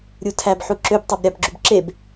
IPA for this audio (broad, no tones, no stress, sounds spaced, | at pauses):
ɾʲ u tʰ æ b ħ u ǁ ø b tˤ ɑ b ɾʲ ɑ b ɡ͡ǁ y b ǁ e b